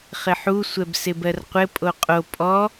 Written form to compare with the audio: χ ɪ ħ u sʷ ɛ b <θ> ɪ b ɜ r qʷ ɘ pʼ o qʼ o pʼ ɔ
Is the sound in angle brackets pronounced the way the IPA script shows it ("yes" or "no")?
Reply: no